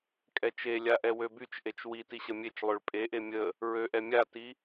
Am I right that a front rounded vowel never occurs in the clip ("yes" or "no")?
no